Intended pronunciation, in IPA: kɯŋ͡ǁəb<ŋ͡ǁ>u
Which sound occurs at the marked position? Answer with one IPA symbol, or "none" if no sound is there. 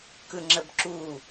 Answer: ǁ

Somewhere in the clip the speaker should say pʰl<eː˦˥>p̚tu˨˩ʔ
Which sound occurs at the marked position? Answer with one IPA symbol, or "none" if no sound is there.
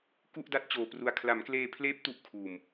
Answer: eː˦˥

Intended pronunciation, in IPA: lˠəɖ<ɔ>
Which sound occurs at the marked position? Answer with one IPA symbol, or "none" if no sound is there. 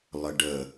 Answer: ə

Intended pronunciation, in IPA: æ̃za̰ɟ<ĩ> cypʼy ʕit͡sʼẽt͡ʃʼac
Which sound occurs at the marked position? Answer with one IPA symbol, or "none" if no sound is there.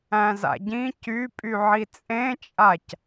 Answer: ĩ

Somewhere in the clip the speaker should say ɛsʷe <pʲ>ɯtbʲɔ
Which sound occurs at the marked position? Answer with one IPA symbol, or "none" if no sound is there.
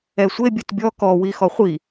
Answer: bʲ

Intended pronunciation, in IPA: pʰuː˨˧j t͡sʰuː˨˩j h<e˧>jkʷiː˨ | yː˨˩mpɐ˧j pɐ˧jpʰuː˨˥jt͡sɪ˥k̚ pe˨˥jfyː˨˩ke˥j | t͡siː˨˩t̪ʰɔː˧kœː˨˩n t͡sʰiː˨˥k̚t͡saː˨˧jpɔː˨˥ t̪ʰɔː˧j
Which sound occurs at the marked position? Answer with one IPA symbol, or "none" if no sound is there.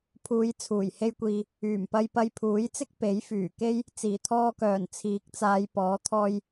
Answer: e˧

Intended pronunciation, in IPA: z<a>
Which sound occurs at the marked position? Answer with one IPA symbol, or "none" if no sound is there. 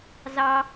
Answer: ɑ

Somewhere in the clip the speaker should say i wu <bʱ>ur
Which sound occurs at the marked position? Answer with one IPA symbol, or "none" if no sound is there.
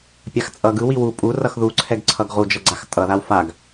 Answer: pʼ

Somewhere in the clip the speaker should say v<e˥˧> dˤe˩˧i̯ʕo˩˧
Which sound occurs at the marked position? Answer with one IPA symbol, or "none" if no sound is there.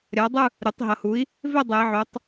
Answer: e˥˧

